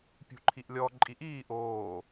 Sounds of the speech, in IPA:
pʲ ṳ ǃʰ i ʔ lʲ ɔ ǃʼ i ʔ iː ʔ oː

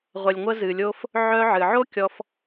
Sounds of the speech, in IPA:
ʁʷ ə˨ lʲ ŋʷ ə˧ z ɨ˨ lʲ o˧ f | ʕ œ˧ ʕ ɨ˨ ʕ o˦ kʲ ɔ˧ f

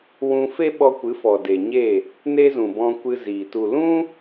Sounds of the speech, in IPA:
w ũ˧ f e˦ ɓ ɔ˧ kʷ ɨ˨˦ f ɔ˨ d e˨ ɲ e˦˨ | n e˧ z ũ˨ b ɔ̃˧ kʷ ɨ˧ z iː˨ t u˨ l ũ˦

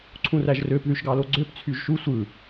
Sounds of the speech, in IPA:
ǀʰ ũ r æ ʒ r ø p ð y ʃ ɡ ɑ l o ɡ͡ǀ ø p t͡sʰ y ʒ ʃ u sʷ ɯ

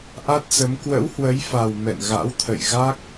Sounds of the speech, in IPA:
ʔ a˦˥ t̚ s ə˨˦ m k w ə̰˧˥ w h w ə˨˦ j f a˨˩ w m ɛ̰˧˨ n ɣ a̰˧˥ w t̪ʰ ə̰˧˨ j ɣ a˦˥ k̚

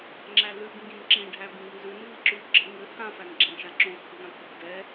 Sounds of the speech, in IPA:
ŋ͡ǁ æ l ʉ ɡ ŋ ɡ ĩ n ǁ ĩ ɖʱ æ b ĩ ɡ n z ʉ n v i ǁ ʉ ɡ͡ǁ ɘ ŋ ɘ h ã f æ n ɡ͡ǁ æ̃ ʃ a ǁ õ x ʉ ɡ ŋ ã t̪ʰ i ɡ d ɛ

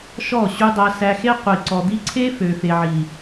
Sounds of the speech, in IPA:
ʃ ɔ˦˨ ɕ ʉ˧ dˤ æ˧ s æ˧ x e˦ qʷ i˨ ǀ ɔ˨ d̪ i˧ ǀʰ e˦ f ø˨ f e˨ ʕ i˨

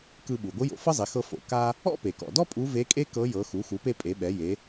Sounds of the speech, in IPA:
k ɯ˧ ɓ u˩ ɡʷ ɯ˧˥ j o̰˩˧ f ɤ˥ zˤ i˩˧ x ɤ˧ f o̰˩ k a˥ | ɔ̰˥ p e˩ k ɔ̰˩ d ɔ˥ pʼ u˧˥ v e˧˥ kʼ e˥ k ɤ˧˥ j ɤ˩˧ x u˩˧ x u˩˧ p e˧ pʼ e˩˧ ɓ ɛ˩˧ j e˩˧

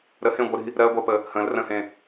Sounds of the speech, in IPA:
ɾ ə h ẽ ɡʷ ə ɾ i̤ | ɾ ɜ ɡʷ ɜ p ə | h ə̃ l r ə̃ h ẽ

